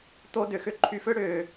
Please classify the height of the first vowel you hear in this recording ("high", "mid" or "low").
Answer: mid